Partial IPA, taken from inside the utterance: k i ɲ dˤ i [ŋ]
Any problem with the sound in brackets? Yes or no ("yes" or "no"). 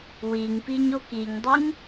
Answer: no